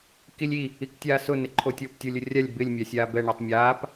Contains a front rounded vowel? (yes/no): no